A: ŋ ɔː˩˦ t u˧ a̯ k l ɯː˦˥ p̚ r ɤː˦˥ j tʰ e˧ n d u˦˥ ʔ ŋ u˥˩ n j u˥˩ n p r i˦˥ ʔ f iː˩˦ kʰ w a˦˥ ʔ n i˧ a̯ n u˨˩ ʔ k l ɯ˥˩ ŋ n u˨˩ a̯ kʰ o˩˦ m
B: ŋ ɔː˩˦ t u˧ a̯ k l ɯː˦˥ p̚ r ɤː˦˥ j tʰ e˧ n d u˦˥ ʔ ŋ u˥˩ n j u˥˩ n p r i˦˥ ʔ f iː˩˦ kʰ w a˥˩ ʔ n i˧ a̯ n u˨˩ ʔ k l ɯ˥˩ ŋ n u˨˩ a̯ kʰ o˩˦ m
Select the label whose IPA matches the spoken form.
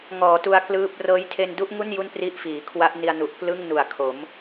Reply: A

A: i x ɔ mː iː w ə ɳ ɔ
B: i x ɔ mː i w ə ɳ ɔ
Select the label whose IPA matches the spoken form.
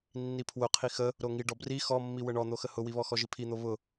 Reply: B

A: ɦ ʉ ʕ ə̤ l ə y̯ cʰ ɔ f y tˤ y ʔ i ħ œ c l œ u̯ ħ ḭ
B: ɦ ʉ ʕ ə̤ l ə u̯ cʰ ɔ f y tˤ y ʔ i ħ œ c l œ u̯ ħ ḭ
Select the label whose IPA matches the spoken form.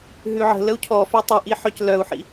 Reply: B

